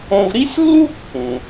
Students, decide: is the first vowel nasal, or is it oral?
nasal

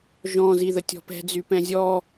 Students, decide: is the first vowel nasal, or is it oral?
nasal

